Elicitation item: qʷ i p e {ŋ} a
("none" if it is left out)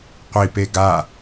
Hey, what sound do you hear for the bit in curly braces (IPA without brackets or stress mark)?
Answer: ɡ